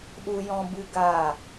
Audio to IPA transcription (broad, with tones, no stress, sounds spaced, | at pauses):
ɗ u˦ j ɔ̃˦ b ɨ˦ ɡ aː˦˨